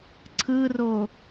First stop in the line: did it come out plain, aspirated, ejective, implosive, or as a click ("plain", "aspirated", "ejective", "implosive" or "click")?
click